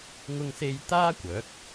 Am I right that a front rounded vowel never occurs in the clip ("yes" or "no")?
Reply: no